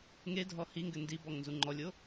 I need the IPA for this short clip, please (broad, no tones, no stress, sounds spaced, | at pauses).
ŋ e dʱ ɔ h i ŋ ɡ ɘ n d i b ɔ ŋ n z u ŋ͡ǃ ɔ lʲ o